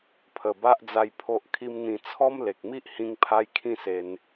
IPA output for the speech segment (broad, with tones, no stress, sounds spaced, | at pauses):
pʰ ə˨˩ b a˦ ʔ d͡z a˧ j pʰ o˦ ʔ kʰ i˦ m n̪ ĩ˧ t͡sʰ ɔ˦ m l e˨ k̚ m i˦ ʔ h ĩ˦ ŋ pʰ a˦ j kʰ ĩ˦ s e˧ n